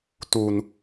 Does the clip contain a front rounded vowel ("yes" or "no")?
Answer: no